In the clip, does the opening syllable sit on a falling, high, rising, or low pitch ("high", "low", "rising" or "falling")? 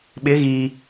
rising